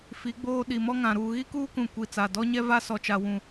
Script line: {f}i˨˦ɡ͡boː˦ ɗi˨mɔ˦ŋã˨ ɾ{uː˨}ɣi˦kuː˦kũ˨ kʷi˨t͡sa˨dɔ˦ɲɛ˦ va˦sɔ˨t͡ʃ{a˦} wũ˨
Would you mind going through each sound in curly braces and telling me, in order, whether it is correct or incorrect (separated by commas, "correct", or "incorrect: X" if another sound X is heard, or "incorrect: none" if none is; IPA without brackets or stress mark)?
correct, correct, incorrect: a˨